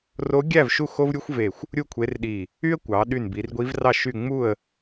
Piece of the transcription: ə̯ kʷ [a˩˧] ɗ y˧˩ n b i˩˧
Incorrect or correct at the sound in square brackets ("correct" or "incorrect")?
incorrect